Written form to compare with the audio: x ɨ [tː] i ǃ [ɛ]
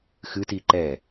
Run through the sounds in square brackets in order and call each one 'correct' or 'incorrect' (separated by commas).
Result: incorrect, correct